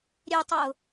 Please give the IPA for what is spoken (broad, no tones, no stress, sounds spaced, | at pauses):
ɾʲ e tˤ ʌ ʊ̯